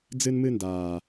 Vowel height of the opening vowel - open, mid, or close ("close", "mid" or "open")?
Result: close